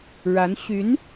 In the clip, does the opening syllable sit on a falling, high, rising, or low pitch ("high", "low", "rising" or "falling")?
rising